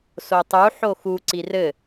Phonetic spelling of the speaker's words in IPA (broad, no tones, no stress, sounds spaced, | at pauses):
s o tˤ u ħ o x u ǀ i r ɘ